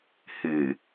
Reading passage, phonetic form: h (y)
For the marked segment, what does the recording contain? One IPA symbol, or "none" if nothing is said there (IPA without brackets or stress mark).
ɨ